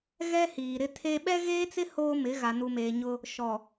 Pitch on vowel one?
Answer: high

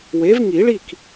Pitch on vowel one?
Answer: rising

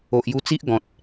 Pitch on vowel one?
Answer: low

